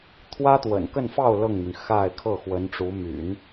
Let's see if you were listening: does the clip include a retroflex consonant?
yes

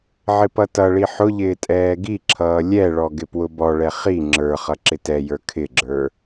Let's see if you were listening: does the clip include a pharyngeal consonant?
yes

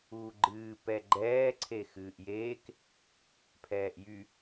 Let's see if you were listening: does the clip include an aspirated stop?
yes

